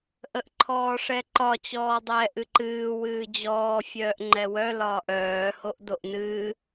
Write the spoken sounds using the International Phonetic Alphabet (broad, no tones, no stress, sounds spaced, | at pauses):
ʔ ə ʔ ǃʰ ɔː ʂ ɛ ǃ ɒ t͡ɕ ɔː dˤ ɛː ʔ ɨ ǃ ɨː w ɨː d͡ʑ ɔː fʲ œː ʔ ŋ͡ǃ ɛ w œ l ɒː ʔ œː h o ʔ d o ʔ n ɨː